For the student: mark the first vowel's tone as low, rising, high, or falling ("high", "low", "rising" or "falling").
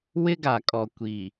high